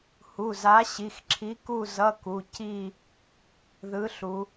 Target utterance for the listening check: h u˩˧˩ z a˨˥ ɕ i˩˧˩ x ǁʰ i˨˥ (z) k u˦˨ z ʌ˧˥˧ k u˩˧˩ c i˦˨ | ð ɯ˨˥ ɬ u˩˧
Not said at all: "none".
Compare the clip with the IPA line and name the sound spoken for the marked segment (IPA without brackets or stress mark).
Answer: none